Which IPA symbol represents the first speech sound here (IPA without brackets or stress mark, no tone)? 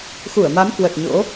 x